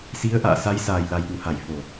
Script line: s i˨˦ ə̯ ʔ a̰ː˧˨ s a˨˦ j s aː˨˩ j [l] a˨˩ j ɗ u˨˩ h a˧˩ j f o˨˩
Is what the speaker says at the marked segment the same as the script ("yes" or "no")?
yes